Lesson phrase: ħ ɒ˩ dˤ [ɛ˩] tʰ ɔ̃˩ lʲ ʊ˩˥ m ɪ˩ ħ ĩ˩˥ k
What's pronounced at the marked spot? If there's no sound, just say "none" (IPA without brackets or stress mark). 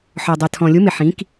ɛ˩